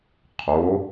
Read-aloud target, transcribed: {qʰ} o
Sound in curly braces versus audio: correct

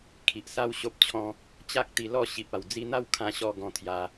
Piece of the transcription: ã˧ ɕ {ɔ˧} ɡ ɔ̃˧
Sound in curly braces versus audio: correct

